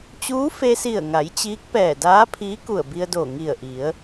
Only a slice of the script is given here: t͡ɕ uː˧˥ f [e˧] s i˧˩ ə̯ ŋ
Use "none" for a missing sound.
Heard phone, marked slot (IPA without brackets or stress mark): e˧